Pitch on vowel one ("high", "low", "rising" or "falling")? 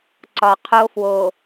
low